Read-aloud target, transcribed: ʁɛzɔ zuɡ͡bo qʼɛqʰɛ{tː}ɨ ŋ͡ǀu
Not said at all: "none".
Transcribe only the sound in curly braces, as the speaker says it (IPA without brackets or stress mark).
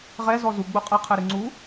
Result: ɾ